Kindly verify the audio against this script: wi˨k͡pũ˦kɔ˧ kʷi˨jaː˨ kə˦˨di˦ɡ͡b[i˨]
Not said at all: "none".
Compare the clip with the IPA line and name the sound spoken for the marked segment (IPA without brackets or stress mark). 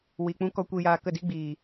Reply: iː˨